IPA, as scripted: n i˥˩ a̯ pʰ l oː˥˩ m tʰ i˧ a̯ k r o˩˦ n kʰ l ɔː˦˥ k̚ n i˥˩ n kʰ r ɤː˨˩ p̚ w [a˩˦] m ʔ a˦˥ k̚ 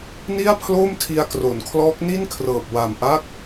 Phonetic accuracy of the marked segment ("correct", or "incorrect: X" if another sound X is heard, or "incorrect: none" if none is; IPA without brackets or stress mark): incorrect: a˨˩